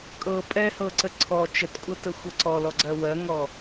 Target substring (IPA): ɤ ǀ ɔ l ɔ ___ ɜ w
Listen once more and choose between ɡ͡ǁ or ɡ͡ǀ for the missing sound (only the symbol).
ɡ͡ǀ